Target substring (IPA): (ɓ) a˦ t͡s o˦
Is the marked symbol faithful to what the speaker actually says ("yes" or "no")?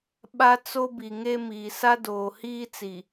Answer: yes